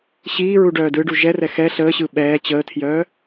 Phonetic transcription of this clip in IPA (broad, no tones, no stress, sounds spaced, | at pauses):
ɕ iː ɹ u ɖ œː d ɯ ɖ u ʒ ɛ r ɛ x ɛ ɬ əː ɕ ɯ ɓ ɛː t͡ɕ əː tʰ j œː